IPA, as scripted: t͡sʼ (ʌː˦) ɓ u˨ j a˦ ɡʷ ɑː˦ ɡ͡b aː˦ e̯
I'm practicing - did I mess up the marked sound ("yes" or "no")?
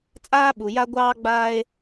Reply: yes